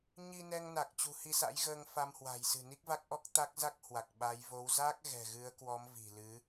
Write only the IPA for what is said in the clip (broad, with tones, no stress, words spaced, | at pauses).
ɲi˧nɛ˧ŋna˨˩k̚ t͡ɕṳ˨˩hi˧sa̰˧˥jɣəː˧ŋ fa˧mhwa̤˨˩jsɨ̤˨˩ ni˦˥k̚va˦˥k̚ʔɔ˦˥k̚ t̪a˦˥k̚za˦˥k̚ hwa˨˩k̚ɓa˨˦j vo˨˦w za˦˥k̚ ɣɛ̤˨˩ɣɨ˨˦ə̯kwɔ˨˦m vi̤˨˩lɨ˨˦